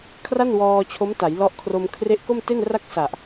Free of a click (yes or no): yes